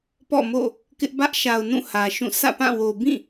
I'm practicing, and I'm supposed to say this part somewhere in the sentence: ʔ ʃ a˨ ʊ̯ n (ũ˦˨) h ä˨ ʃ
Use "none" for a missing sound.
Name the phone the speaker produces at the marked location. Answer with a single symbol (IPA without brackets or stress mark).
ũ˦˨